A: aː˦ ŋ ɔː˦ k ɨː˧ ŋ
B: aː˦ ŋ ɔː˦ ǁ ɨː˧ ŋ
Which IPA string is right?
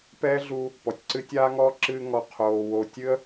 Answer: B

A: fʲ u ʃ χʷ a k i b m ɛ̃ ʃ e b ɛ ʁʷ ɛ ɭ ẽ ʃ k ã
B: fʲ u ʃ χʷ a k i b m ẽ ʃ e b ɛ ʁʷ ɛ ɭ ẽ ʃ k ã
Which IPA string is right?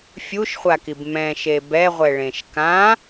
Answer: A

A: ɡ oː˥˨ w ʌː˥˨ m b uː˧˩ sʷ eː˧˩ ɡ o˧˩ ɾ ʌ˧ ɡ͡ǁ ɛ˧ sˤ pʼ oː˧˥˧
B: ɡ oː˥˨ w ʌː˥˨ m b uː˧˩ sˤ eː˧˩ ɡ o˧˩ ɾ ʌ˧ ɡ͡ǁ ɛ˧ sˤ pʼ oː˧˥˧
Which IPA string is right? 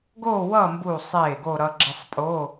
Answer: B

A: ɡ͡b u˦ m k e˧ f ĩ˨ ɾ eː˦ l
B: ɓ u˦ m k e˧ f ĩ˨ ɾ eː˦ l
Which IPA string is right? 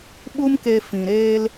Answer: B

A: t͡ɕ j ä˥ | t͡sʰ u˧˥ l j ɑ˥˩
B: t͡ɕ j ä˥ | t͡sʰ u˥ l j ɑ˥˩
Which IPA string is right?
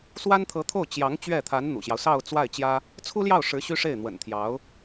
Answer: B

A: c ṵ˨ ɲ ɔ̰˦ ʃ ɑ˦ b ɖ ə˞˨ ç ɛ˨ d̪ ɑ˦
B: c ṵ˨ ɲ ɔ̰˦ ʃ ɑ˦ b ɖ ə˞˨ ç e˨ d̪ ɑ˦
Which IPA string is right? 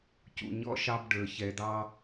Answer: A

